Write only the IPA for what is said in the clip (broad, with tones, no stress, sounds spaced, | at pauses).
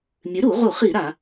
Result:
mʲ ɨ˩˥ ɾ u˧˩˧ ʁ u˧˩˧ χ i˧˩˧ ɾ a˧˩˧